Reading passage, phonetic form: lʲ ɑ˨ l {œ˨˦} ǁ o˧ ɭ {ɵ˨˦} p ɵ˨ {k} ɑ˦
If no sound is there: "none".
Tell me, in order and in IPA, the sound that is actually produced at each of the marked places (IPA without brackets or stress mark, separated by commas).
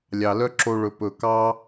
œ˦, ɵ˨, k